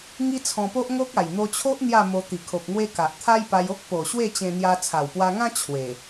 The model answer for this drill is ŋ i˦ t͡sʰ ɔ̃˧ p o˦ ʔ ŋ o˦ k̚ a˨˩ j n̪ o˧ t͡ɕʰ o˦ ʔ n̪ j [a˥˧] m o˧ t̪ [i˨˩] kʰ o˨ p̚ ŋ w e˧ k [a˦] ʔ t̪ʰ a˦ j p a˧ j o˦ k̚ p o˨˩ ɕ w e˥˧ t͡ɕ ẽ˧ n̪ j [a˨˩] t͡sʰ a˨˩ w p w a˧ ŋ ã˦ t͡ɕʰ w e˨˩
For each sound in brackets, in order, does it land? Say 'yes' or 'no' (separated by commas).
yes, yes, no, no